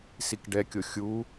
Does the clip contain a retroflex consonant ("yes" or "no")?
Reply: yes